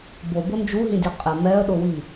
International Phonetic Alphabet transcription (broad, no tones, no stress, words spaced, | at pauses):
bobo nd͡ʒuɦĩdʲɛ qʼɪ mɛə̯ɗʊwi